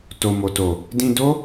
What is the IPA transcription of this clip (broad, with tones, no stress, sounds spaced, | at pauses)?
t o˨ m o˨ t o˨ | d ĩ˧ d o˦